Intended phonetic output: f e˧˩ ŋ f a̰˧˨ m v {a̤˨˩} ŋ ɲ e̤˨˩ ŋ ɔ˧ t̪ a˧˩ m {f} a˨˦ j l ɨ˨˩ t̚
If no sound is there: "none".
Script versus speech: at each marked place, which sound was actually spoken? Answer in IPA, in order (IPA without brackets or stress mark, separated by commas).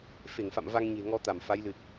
a˧, f